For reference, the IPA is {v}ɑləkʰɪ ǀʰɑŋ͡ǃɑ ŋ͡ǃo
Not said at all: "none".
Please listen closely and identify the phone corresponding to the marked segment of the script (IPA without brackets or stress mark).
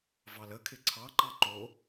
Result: v